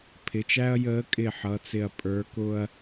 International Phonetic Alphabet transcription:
pʰ ɪ˩˧˩ t͡ʃ æ˦ ɐ̯ j əː˨˥ kʼ ɪ˧˩ ħ ʌ˩˧˩ t͡s ɪ˧˩ ɐ̯ pʼ ə˞˨˥ k ʊ˦ ɐ̯

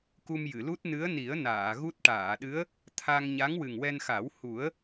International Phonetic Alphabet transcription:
k u˧ m j ɨ˨˩˨ l u˦˥ t̚ n ɨ˧˥ ə̯ n i˨˩˦ ə̯ n aː˨˩˨ ɣ u˦˥ t̚ ʈ aː˨˩˨ ɗ ɨ˧˥ ə̯ | t̪ʰ a˧ ŋ ɲ a˧˥ ŋ w ɨ˨˩ ŋ w ɛ˧ n x a˨˩˦ w h u˨˩˦ ə̯

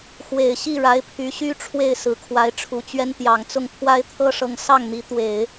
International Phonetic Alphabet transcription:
x w e˨˩ ɪ̯ ɕ i˥˩ ɻ a˧˥ ɪ̯ pʰ y˧˥ ɕ y˥ ʈ͡ʂʰ w e˥˩ ɪ̯ s ɹ̩˨˩ kʰ w a˧˥ ɪ̯ ʈ͡ʂʰ u˨˩ t͡ɕ ɥ ɛ˥ n t̪ j ɑ˨˩ ŋ t͡s ʊ˥˩ ŋ pʰ w a˥ ɪ̯ t̪ʰ ɤ˥ ʂ ɤ˧˥ ŋ s ɑ˥˩ ŋ n̪ i˧˥ t̪ w e˨˩˦ ɪ̯

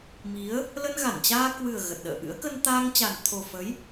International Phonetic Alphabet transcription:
m i˨˦ ə̯ | l ə˧ n ɣ a˧˩ n t͡ɕ aː˧ k w ɨ˨˩ ə̯ ɣ ə˨˩ t̚ ɗ ə̰ː˧˨ ʔ ɨ̰˧˥ ə̯ k ə˧ n t̪ aː˧ ŋ t͡ɕ a˨˩ n t̪ʰ o˨˩ f ə˨˦ j

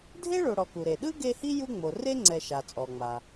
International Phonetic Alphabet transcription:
dʱ e˥ ɭ o˨ ɽ ɔ˨ k u˩ ɾ e˩ ɗ ɯ˥ ɡ e˦ h i˥ j u˦ ŋ͡m o˩ r e˥ ŋ͡ǀ ɛ˨ ʃ a˩ t͡sʼ ɔ˩ ŋ͡m a˩

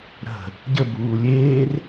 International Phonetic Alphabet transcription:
ɾ ə̤ | ɟ ə b uː lʲ eː r

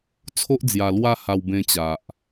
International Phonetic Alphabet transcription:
t͡sʰ o˦ ʔ d͡z j a˧ l w a˦ h a˧ w b ẽ˧ t͡ɕ a˨ ʔ

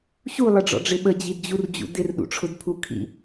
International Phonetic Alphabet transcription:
ɕ u lˠ ə ɖ͡ʐ ɔ̰ ɖ͡ʐ ɪ ɓ ə d͡ʑ i d d͡ʑ u r d͡ʑ ṵ d ɪ r ɗ ṵ ʈ͡ʂʰ ʊ d pʰ u kʰ ḭ

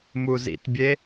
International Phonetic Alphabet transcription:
m u z ḭ t bʲ e

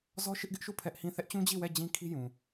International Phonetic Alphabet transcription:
z ɔ˦ ʃ ɪ˦ ʔ ɡ ɪ˦ ʔ ʃ u˦˨ pʰ ɛ˦ ʔ h ĩ˦˨ θ ɛ˦ ʔ t͡ɕ ũ˦ d͡ʑ i˦˨ w ɛ˦˨ d͡ʑ ĩ˦ kʰ i˦ j ũ˨

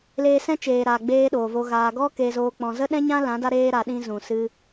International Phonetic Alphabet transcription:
l eː˧ s ɛ̃˦ t͡ʃ eː˨ ɾ aː˨ ɡ͡b eː˦ ɗ oː˨ v o˧ ɣ aː˧ ɡ ɔ˦ k e˧ z oː˧ k͡p ɔ̃˧ z ə˦ ɗ ɛ̃˦ ɲ ã˦ l ã˨˦ d a˧ ɾ eː˧ ɾ a˧ ɗ ĩ˦ z ũ˨ s ɨ˧

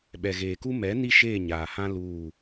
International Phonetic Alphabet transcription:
ɓ ɛ˨ ɣ eː˨ k u˦ m ɛ˨˦ n i˦ ʃ eː˦˨ ɲ aː˨ h ã˦ l uː˦˨

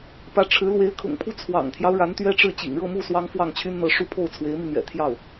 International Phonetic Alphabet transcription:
p ä˧˥ ʈ͡ʂʰ ɻ̩˧˥ l w e˧˥ ɪ̯ kʰ ʊ̰˨˩ ŋ pʰ u˥˩ t͡sʰ w ɑ̰˨˩ ŋ t̪ʰ j ɑ˦ ʊ̯ ɻ a˧˥ n t̪ ɥ ɛ˥ ʈ͡ʂ ɻ̩˥˩ t͡ɕ ḭ˨˩ ŋ ɻ ɤ˥˧ m u˥˩ s w ɑ˥ ŋ f w ɑ˥˩ ŋ t͡ɕʰ y˥ n n̪ ɤ˧˥ ʂ u˥˧ pʰ o˥˩ ʊ̯ t͡sʰ w e˧˥ ɪ̯ m i˧ n̪ ɥ ɛ̰˨˩ t̪ʰ j ɑ˥˩ ʊ̯

